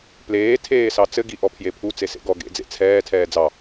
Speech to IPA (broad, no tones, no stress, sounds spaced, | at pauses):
p l eː tʰ eː s ɑ t͡s ɘ ɡ i ʔ ɔ pʰ j e pʰ u t͡s e s ḛ ɡ ɔ ɡ ḛ d͡z ḛ t͡sʰ ɛː tʰ ɛː d͡z ɑ